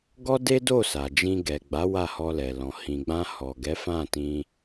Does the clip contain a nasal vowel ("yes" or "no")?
yes